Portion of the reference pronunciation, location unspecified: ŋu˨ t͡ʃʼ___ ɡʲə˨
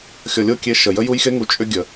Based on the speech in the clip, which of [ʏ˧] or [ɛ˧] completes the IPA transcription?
ʏ˧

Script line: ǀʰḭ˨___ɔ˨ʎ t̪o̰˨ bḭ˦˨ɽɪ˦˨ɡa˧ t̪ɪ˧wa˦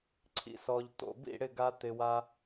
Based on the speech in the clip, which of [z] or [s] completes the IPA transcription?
s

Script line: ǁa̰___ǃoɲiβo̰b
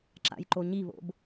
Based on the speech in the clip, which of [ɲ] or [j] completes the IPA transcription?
j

